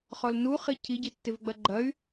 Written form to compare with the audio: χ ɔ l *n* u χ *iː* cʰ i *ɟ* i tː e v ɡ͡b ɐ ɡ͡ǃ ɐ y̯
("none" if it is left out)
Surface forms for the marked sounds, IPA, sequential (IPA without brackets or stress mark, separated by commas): n, i, ɟ